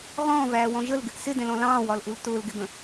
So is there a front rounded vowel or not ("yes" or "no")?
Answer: no